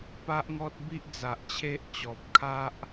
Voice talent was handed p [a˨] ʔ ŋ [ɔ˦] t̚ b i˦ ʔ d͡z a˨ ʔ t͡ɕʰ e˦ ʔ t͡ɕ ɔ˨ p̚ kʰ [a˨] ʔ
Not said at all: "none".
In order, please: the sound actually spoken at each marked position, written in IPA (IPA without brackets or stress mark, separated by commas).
a˦, ɔ˦, a˦